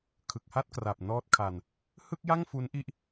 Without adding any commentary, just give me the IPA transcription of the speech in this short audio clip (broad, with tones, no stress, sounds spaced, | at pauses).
kʰ ɯ˨˩ k̚ h a˥˩ t̚ k r a˨˩ p̚ n ɔː˦˥ t̚ kʰ a˧ n | h ɯ˥˩ k̚ j a˥˩ ŋ f u˦˥ n ʔ i˥˩ ʔ